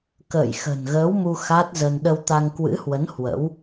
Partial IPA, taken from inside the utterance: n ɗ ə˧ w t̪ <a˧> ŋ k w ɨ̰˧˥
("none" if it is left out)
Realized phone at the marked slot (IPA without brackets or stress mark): a˧